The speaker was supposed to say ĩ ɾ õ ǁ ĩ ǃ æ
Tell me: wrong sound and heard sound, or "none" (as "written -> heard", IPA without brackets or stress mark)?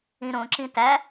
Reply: ǃ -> t